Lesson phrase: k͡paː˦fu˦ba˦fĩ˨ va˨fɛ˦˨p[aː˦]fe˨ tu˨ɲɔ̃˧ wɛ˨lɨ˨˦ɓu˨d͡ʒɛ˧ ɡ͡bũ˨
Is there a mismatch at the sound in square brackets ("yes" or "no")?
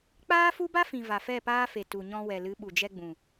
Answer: no